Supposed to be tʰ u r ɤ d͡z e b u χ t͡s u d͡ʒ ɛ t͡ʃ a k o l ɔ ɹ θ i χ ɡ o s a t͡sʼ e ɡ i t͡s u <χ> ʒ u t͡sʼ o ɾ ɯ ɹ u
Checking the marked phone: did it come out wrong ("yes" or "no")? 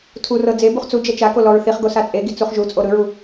no